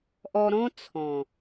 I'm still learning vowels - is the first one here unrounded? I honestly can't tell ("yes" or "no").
no